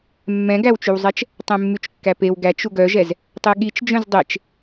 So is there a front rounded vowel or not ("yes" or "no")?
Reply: yes